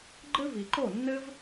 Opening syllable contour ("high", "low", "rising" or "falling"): high